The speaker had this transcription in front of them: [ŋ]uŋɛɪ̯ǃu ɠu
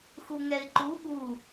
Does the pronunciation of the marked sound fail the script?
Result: yes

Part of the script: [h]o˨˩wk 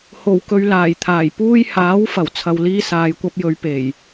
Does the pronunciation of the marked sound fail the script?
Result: no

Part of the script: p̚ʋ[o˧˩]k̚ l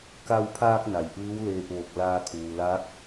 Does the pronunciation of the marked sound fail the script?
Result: no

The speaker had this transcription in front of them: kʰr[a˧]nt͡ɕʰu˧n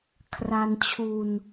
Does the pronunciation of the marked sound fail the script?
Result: no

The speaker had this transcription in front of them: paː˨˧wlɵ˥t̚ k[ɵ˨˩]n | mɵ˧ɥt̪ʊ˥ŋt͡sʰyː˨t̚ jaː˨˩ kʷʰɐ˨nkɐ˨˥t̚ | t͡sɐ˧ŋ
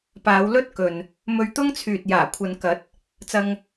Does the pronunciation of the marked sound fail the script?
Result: yes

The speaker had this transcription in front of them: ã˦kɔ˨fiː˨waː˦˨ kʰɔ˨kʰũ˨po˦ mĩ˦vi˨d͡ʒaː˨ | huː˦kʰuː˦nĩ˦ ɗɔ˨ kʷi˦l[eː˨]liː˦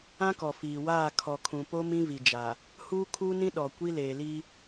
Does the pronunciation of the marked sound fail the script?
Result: no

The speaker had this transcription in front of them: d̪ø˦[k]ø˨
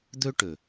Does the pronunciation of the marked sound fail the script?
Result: yes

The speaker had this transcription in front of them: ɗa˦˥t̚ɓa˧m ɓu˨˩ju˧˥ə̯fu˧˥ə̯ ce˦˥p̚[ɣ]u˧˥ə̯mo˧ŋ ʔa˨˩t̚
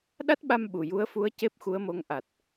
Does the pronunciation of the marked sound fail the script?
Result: yes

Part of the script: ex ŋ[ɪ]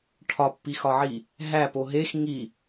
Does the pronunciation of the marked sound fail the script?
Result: yes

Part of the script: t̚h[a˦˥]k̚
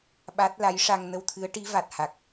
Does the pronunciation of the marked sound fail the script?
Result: yes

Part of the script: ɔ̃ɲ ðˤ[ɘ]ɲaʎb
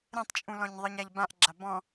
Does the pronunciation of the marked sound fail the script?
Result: no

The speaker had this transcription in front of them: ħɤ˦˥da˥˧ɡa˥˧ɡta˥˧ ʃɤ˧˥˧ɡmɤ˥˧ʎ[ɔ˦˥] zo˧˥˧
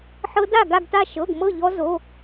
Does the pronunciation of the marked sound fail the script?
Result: no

